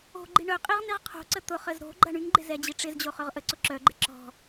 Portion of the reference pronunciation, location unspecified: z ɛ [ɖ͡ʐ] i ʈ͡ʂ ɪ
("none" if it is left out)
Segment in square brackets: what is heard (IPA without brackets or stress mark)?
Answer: d͡ʑ